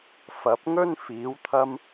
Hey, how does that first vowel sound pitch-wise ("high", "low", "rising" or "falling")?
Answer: rising